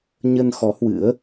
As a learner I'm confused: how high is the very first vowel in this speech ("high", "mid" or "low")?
mid